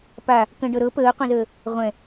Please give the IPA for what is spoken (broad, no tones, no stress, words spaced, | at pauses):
pa | kə̃ɖɤ ɾɤ pəːqʷə̃zəː | ʁʷɛ̃